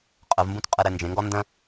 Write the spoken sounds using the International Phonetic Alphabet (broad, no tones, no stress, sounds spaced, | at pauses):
qʼ ə v m b ũ t qʼ ɛ ɾ ɛ n d͡ʒ ẽ ŋ ɡ ɔ n d ə̃